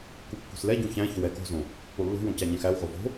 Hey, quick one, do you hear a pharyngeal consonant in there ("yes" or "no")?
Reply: no